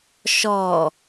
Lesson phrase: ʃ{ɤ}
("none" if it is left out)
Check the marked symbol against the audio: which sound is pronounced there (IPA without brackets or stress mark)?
ɔ